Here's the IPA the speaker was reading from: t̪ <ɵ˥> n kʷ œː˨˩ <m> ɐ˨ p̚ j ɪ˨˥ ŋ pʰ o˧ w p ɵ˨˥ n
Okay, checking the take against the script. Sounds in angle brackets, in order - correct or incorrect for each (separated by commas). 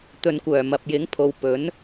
incorrect, correct